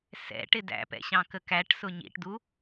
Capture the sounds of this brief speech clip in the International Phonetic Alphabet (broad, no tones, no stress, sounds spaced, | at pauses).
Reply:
s ɛ̰ ʈ ɪ d æ̰ p ɛ̰ ɕ ɑ̃ k ə k æ ʈ s ʊ ɲ ḭ ʈ d u